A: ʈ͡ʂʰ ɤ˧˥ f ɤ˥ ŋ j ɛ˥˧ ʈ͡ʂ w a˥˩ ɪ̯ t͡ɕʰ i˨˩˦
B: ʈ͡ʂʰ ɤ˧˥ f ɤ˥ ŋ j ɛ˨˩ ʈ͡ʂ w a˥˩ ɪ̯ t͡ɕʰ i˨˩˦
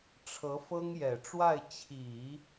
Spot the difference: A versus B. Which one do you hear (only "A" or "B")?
B